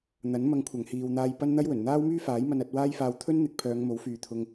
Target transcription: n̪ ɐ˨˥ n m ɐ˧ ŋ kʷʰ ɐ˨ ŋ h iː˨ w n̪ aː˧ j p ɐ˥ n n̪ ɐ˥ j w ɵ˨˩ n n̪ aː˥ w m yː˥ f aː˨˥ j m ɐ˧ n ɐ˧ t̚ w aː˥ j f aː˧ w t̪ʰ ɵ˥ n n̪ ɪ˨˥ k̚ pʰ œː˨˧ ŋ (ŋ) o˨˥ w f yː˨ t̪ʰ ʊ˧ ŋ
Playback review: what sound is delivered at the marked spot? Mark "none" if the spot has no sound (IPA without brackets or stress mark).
m